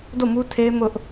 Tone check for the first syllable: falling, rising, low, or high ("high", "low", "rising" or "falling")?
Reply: falling